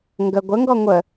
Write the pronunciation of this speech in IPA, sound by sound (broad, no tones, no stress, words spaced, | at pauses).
ŋɡə ɡʷəŋɡɔ ŋʷə